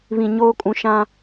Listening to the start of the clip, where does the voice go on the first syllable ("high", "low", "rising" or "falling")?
low